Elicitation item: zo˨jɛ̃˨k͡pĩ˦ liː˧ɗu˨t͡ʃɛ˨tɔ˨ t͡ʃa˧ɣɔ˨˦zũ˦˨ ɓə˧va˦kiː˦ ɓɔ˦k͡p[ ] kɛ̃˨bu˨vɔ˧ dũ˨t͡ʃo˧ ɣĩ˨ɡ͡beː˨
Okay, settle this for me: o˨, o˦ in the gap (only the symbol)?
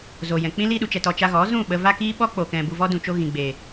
o˨